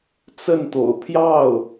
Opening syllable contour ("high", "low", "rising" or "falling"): falling